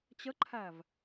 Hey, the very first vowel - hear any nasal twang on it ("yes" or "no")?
no